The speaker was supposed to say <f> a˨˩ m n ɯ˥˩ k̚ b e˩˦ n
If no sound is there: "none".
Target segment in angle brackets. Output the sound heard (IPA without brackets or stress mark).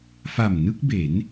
f